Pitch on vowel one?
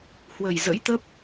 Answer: low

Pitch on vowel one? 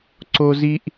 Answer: high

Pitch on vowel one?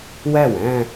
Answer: falling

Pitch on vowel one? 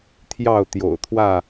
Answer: falling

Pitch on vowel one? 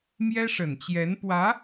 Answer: high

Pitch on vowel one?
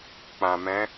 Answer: low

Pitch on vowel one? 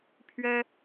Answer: high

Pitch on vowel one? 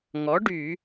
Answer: rising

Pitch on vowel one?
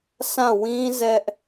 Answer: falling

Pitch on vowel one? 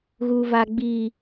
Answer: low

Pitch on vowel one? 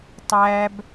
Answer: high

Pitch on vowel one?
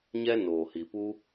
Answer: high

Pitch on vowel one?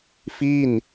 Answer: falling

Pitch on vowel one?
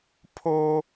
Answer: high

